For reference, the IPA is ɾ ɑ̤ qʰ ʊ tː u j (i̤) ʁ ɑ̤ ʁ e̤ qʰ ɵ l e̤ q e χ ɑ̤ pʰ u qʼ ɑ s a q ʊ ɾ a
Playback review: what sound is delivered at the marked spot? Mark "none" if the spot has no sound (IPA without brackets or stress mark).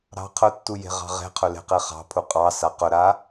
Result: e̤